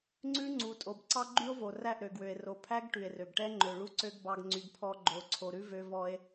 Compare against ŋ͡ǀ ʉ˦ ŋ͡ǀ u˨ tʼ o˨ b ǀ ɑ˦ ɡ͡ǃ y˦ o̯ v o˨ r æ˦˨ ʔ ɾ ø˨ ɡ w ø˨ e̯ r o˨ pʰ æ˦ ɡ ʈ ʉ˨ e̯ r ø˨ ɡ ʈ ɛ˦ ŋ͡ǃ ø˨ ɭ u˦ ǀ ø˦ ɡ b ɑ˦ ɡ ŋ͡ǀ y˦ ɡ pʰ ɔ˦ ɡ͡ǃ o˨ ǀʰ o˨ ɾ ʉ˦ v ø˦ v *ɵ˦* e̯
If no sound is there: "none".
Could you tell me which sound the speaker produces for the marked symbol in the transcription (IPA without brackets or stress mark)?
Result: ɔ˦